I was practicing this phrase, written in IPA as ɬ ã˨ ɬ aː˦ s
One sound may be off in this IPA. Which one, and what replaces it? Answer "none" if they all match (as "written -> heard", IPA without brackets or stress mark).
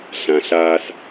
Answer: none